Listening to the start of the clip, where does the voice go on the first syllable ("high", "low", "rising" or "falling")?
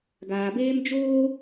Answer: low